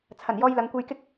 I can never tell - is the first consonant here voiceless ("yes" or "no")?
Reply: yes